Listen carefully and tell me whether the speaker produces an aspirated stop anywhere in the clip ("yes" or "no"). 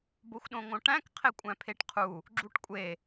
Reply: yes